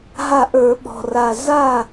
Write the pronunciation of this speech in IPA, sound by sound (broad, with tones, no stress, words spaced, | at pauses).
ɦa˥˩ʔə˞˧˩˧ɓɔ̤˨˩ra˨˩ za˥˩